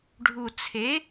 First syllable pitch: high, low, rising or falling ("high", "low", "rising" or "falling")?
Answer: low